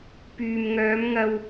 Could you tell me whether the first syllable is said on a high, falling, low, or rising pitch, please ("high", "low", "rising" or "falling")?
low